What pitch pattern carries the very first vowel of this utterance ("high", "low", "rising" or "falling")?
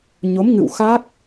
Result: rising